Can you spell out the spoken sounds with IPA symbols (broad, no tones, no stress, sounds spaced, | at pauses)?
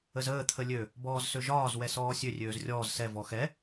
ə z əː t̪ʰ ə lʲ ø | b ɔː z s ø ʒ ɒː z w ɛ s ɔː sʲ ø rʲ øː z rʲ ɔː z s ɛ v ɔ x ɛ